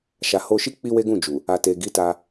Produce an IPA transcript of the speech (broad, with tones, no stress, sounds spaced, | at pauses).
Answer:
ʃ a˨ h o˧ ʃ i˦ k͡p i˦ w e˦ ɡ ũ˦˨ d͡ʒ u˨ | a˨ t e˨ ɡ i˨˦ t a˧